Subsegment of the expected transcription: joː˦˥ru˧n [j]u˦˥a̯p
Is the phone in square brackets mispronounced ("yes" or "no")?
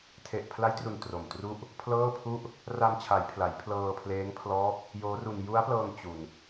no